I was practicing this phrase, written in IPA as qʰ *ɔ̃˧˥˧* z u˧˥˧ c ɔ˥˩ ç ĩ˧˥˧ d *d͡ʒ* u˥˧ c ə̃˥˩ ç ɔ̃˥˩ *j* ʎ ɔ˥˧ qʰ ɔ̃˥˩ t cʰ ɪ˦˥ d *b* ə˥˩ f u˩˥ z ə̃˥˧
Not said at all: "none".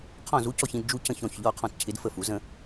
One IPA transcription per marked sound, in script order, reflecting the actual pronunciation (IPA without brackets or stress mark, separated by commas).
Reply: ɔ̃˥˩, d͡ʒ, ç, f